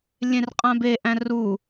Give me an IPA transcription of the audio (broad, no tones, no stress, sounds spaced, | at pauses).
lʲ ẽ r qʼ ã b e ʔ æ̃ r u